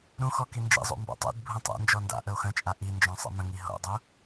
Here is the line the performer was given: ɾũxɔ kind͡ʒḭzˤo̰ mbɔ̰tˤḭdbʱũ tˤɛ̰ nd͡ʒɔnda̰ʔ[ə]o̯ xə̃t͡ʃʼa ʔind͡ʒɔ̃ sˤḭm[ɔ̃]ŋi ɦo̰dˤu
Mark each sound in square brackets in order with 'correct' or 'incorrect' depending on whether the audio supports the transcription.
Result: correct, incorrect: ə̃

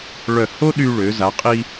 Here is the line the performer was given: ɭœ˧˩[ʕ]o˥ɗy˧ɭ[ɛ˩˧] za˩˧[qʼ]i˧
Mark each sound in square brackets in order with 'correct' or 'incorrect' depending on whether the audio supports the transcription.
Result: incorrect: h, incorrect: ø˩˧, correct

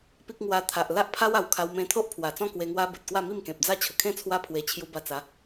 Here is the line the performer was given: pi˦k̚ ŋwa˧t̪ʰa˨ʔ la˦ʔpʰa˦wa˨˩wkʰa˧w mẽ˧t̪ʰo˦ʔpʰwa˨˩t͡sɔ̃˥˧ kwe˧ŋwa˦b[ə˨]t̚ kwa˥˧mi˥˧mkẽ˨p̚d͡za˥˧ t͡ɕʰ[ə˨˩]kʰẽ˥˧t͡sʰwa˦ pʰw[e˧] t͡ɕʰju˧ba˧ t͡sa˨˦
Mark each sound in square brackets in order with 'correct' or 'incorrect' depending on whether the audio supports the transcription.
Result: correct, correct, correct

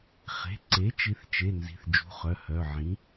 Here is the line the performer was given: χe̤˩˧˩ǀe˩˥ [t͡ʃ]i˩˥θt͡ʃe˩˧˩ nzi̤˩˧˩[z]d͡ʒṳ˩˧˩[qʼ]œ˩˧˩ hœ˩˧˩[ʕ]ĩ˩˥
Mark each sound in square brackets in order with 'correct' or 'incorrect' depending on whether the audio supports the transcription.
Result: correct, incorrect: θ, incorrect: χ, correct

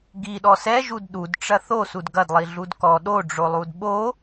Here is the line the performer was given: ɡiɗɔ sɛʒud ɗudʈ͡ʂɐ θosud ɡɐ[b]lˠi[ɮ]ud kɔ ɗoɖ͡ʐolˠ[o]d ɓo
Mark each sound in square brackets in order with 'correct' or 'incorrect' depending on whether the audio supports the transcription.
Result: incorrect: d, correct, incorrect: u

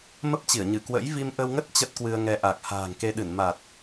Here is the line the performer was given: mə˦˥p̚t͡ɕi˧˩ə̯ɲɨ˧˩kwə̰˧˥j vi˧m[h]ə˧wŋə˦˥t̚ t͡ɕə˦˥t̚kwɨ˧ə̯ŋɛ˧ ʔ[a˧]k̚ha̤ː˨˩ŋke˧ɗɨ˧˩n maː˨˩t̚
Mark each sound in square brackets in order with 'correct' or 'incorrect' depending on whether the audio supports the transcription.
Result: incorrect: ʔ, incorrect: a˨˩

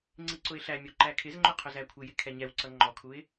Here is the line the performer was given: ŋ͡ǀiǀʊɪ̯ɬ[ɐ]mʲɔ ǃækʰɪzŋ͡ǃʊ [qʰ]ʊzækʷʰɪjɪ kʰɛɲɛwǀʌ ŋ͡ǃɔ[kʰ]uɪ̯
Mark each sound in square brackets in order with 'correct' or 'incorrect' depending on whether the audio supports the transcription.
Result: incorrect: æ, correct, correct

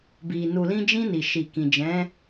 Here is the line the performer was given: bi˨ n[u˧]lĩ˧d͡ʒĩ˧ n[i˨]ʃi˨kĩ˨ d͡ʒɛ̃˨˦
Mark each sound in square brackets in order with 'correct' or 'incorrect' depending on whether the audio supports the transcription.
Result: incorrect: u˨, correct

